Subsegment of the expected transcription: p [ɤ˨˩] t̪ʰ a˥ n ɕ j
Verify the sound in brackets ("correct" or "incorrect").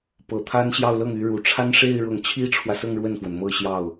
correct